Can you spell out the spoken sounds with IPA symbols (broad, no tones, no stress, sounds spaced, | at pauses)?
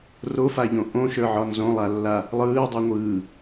r o f a ʎ õ ʔ õ ʃ ə˞ ʕ ɒ n z õ lˠ a lː a | lˠ ɯː dˤ o ŋʷ ɯː